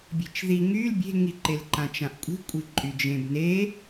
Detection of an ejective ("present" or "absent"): present